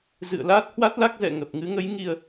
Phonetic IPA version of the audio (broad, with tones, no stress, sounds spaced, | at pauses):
z ɨ̰˧˨ ə̯ l aː˦˥ t̚ h w a˦˥ t̚ l a˦˥ k̚ z ɛ̰˧˨ ŋ ə˨˩ p̚ ŋ ɨ˨˦ ŋ ə˨˦ j ŋ i˧ ə̯